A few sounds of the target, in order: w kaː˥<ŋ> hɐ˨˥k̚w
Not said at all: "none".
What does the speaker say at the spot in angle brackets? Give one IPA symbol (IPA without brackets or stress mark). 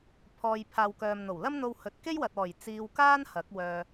n